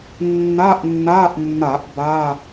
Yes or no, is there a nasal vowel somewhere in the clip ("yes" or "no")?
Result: no